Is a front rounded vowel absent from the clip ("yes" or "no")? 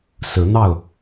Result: yes